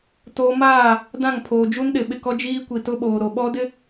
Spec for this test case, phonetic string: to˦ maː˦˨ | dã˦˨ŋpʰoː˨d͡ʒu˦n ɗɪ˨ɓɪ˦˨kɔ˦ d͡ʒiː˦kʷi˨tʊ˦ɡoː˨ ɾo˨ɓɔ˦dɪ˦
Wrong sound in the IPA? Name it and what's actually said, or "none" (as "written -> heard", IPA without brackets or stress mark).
ɡ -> ɓ